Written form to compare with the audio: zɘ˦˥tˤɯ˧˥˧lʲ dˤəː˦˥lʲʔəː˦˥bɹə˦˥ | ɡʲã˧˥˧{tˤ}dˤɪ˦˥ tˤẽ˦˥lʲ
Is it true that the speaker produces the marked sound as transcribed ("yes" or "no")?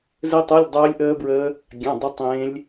no